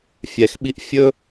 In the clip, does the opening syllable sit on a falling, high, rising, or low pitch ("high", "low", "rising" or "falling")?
low